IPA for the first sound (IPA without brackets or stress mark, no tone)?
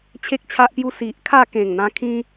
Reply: t͡ɕʰ